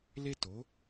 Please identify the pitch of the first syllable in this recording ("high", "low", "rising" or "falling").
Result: high